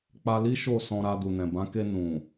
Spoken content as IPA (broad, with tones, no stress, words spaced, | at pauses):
k͡pa˧li˦ʃo˦˨ sɔ̃˧ɾa˧ du˨nɛ̃˨bã˨˦ke˧ nũ˨